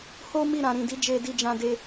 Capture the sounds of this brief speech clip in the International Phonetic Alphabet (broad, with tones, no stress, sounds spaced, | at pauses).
h o˦ m i˦˨ ɾ ã˨ ɾ ĩ˨ d i˨˦ d͡ʒ e˧ d i˧ d͡ʒ ã˧ d e˧